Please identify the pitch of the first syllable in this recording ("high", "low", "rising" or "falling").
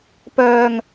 low